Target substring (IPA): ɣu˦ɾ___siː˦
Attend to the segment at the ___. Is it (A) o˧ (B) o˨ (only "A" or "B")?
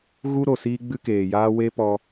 B